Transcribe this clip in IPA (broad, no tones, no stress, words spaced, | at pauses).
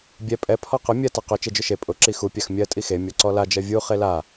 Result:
bʲɛ pʼɛ pʰɔqʊ mʲɜ taqø t͡ʃed͡ʒʊʃe pʼʊ ǁixu pʲaxmʲɜ tʼixe mʲɔǀɔla d͡ʒɜvʲu χela